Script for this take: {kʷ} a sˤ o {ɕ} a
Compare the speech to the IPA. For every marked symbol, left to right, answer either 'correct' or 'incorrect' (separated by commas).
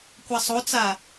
correct, incorrect